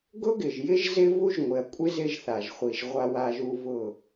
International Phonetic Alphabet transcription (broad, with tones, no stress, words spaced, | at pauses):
ɡʊ˦ɡɪ˨ʒjɪ˦ʒ zɪ˦vu˦ʒŋʷɪ˨ɐ̯kʷʼɪ˦ zɪ˦ʒθa˨ʒχʷi˨ʒ ʁʷa˦wa˦ʒu˦ vʊ˦˨